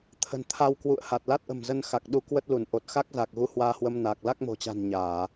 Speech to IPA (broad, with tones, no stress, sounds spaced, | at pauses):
t̪ʰ ə̤˨˩ n t̪ʰ a˧ w k w ṵ˧˨ ə̯ h a˨˩ t̚ l a˦˥ t̚ ʔ ə̤˨˩ m z ə˧ n x a˨˩ k̚ ɗ u˧ k w ə˦˥ t̚ l u˧˩ n ʔ o˨˩ t̚ x a˦˥ k̚ z a˨˩ k̚ ɣ u˨˦ h w aː˧ h w ə˧ m n aː˨˩ k̚ l a˦˥ k̚ m o̤˨˩ t͡ɕ a̤˨˩ n ɲ aː˧˩˨